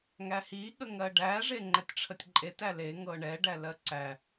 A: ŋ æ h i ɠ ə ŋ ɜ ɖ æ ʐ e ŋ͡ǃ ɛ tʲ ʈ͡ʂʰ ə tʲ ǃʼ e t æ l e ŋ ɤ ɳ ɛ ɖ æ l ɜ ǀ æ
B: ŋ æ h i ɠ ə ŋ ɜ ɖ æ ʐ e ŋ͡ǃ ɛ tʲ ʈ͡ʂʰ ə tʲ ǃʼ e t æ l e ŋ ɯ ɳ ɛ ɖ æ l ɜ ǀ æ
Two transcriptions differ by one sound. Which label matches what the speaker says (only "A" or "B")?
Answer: A